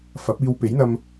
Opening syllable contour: rising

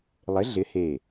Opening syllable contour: rising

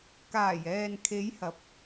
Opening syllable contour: low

